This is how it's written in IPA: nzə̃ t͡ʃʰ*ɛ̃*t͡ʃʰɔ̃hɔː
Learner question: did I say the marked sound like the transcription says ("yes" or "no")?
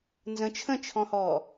no